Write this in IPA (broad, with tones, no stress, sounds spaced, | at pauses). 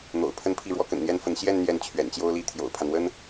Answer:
n̪ o̰˨˩ ʊ̯ pʰ ə˥ n pʰ i˥˩ ɻ w ɔ˥ k ə̰˨˩ n n̪ j ɛ˥ n f ə˧˥ n ɕ j ɛ˥˧ n n̪ j ɛ˥˩ n t͡ɕʰ ɥ ɛ̰˨˩ n t͡ɕ j o˥ ʊ̯ l i˥ t̪ʰ j o̰˨˩ ʊ̯ pʰ a˦ n w ə˥ n